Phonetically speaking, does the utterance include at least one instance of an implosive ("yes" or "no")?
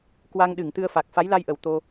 yes